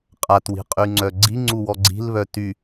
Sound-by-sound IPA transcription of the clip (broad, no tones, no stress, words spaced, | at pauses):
qʼatwi̤qʼyŋ͡ǀœ ɡ͡ǀiŋ͡ǀuwɔ ɡ͡ǀi̤lβœ ty